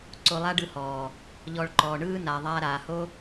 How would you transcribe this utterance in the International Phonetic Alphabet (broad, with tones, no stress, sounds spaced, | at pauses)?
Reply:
ǀ o˧ lˠ a˦ ɖ ɯ˧ h ɔː˨ | ʎ ɔ˧ ɭ ǃ ɔː˨ ɳ ɯː˦ n a˨ ðˤ aː˧ ɾ aː˨ h o˦